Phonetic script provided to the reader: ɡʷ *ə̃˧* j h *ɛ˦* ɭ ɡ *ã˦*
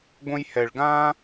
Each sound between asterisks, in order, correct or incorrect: correct, incorrect, correct

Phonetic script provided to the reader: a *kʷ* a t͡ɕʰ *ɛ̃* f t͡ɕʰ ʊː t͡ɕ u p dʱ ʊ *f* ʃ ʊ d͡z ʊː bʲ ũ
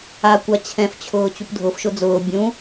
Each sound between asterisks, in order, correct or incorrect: correct, correct, correct

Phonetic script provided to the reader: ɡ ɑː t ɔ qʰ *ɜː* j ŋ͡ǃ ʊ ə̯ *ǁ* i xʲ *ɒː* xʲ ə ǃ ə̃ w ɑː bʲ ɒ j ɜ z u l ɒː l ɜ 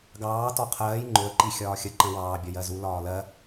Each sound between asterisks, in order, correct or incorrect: correct, incorrect, correct

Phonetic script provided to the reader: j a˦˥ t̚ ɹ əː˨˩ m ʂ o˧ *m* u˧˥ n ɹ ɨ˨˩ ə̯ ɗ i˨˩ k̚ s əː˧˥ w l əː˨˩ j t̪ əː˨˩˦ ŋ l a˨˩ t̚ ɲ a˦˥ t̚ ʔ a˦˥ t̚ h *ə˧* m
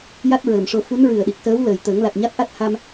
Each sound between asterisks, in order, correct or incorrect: incorrect, incorrect

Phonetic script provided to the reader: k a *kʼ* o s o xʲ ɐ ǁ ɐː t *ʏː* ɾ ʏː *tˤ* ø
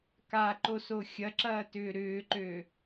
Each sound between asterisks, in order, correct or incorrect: incorrect, correct, incorrect

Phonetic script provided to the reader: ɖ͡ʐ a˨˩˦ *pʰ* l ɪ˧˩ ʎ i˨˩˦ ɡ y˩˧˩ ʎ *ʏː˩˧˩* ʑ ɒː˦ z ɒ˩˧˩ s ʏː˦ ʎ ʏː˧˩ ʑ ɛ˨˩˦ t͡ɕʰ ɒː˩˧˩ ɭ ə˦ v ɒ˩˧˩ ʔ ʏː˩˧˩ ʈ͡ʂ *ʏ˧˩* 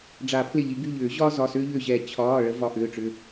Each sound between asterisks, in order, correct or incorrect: correct, incorrect, incorrect

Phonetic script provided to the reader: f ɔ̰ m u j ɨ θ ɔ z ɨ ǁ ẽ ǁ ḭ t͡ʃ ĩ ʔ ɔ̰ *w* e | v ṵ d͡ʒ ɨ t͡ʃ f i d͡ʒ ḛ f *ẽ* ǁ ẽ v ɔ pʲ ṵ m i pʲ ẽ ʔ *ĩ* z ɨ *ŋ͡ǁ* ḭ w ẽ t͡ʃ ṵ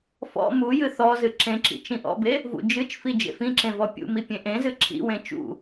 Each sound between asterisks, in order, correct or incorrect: incorrect, incorrect, incorrect, incorrect

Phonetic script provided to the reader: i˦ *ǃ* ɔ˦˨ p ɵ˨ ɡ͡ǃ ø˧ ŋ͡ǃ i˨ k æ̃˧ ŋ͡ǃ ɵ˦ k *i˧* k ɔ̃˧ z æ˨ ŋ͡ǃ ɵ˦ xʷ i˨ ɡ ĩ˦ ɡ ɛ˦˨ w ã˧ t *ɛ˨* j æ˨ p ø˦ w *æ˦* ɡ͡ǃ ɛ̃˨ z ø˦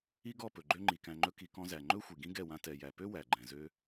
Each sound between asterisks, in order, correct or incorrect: incorrect, correct, correct, incorrect

